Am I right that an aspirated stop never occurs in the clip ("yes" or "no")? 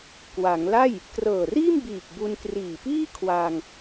no